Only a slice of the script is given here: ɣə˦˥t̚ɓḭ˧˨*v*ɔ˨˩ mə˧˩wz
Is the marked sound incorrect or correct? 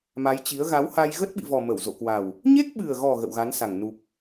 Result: correct